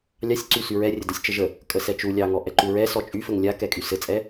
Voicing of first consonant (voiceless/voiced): voiced